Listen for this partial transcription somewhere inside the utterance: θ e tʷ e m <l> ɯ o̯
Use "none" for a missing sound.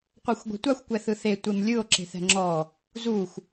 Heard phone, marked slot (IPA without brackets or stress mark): lʲ